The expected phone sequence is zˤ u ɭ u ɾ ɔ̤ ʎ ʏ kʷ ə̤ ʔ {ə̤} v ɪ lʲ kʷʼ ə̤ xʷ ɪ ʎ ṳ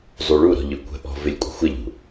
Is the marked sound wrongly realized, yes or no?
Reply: yes